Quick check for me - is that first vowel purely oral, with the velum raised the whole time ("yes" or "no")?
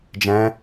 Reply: no